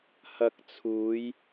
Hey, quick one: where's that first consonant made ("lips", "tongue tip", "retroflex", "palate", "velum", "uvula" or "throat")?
throat